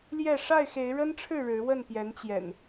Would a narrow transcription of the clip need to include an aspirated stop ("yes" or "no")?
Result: yes